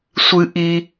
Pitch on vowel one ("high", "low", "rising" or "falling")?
high